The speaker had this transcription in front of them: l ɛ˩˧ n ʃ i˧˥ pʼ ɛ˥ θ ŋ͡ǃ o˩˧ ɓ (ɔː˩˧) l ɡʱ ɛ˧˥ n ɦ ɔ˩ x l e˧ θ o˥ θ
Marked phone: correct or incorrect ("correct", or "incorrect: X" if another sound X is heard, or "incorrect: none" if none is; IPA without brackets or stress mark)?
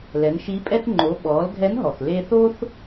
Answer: correct